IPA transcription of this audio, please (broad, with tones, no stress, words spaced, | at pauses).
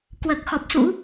kwəː˨˩k̚xɔ˨˩p̚sṵ˧˥